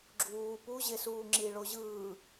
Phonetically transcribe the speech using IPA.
ɡ͡ǁ uː p u ʑ e s uː ŋ͡ǁ i ɭ o ʑ ɯː

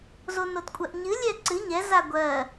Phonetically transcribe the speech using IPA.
z o n o t kʷʼ ɜ ʔ ɲ ɨ lʲ ɛ ǀ ɨ ɲ ɛ z a ɡʷ ɜ

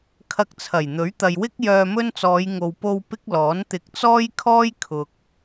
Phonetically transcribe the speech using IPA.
kʰ ɐ˧ k̚ t͡sʰ ɐ˨˩ j n̪ ɵ˨˥ ɥ t̪ ɐ˨ j w ɪ˥ k̚ j œː˧ m ɵ˥ n t͡s ɔː˨˧ j ŋ o˨ w p o˧ w p ɪ˥ k̚ l ɔː˨˥ n t̪ ɪ˨ k̚ t͡s ɔː˥ j kʰ ɔː˥ j kʰ ʊ˨ k̚

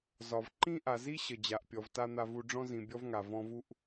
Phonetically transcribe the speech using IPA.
z ɒ˨ v ǃ ĩ˥ ʔ a˨ z i˥ ɕ ə˨ d͡ʑ a˨ ʔ pʲ ɔ˨ v t a˥ n̪ a˦ v u˦ ɖ͡ʐ ɔ̃˥ z ĩ˨ bʲ ɔ˥ v ŋ a˩ v ɔ̃˦ v u˥ ʔ

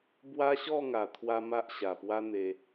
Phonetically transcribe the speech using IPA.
b w a˦ ɕ ɔ˥˧ ŋ a˨˩ t̪ʰ w a˧ m a˦ ʔ ɕ a˨˩ p w a˦ n̪ e˧

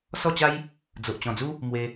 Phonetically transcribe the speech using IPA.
s ɔ˥˧ t͡ɕ a˦ j | d͡z o˨ ʔ t͡ɕ ɔ̃˨˩ d͡z u˦ | m w e˧

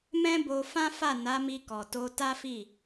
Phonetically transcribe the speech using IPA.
m ɛ̃˦ b o˧ f ã˦ f a˦˨ n a˨˦ m i˧ k ɔ˨ t o˧ t a˦ f i˦˨

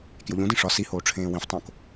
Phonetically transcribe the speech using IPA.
k j o ʎ ũ d ĩ ʂ ɒ s i h oː ʈ͡ʂʰ ẽː w ĩ f tˤ õ k

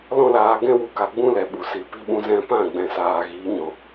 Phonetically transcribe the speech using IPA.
l ɔ̃˦ l aː˧ ɡ ɛ̃˦ w u˧ k a˨ ɡ͡b ũ˦ l ɛ˨ ɓ u˨ s i˨ p i˧ ɓ ũ˧ z ɛ̃˦ p ã˦˨ ɡ͡b ɛ̃˨ s aː˨ ɣ iː˨˦ ɲ ɔ̃˨

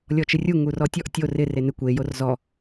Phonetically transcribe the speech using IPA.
lʲ ɔ t͡ʃ ɪ rʲ u ŋ u r ɔ tʲ ɔ ʔ tʲ o r ɪ r e n ɪ kʷ e j o r z ɔ

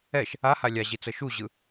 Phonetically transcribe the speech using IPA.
ɛ ʃ | a h a lʲ a ʑ i t͡s ɤ ʃ u ʑ ɯ

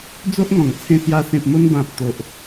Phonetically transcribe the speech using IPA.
d͡z o˦ ʔ ŋ ɔ̃˨˩ ŋ t͡sʰ ẽ˧ s j a˧ s ẽ˨ p̚ m o˧ n b ã˨ p̚ t̪ o˨ ʔ

